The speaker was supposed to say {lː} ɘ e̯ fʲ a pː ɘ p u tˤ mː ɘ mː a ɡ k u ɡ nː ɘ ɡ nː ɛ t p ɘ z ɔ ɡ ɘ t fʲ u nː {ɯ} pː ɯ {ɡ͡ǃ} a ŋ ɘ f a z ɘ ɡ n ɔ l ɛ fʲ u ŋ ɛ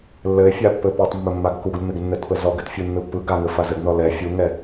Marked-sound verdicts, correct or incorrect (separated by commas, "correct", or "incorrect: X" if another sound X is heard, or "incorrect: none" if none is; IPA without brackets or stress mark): correct, correct, incorrect: ɡ